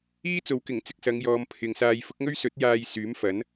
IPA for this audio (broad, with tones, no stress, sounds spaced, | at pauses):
iː˥ t͡s o˨˧ w k ɪ˨˩ ŋ t͡s ɪ˧ k̚ s ɐ˨˧ ŋ j ɔː˨ m pʰ ɪ˨ ŋ s aː˧ j f ʊ˨˥ k̚ ŋ ɵ˥ ɥ s ɵ˨˥ t̚ j aː˧ j s yː˨˥ m f ɐ˨˥ n